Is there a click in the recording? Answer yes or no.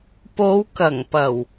no